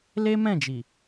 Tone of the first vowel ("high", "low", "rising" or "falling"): high